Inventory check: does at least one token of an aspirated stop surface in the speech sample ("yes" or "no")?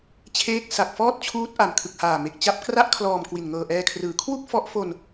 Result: yes